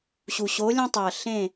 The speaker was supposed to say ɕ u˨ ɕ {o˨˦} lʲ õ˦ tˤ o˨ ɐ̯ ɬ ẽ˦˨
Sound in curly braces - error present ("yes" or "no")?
no